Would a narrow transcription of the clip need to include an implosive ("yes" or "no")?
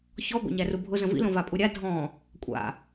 no